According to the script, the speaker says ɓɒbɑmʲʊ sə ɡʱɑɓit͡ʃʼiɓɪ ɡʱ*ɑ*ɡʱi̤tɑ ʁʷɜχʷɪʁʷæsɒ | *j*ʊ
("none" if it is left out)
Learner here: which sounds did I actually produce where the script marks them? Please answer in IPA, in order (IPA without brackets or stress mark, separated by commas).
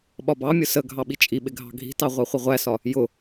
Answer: ɑ̤, j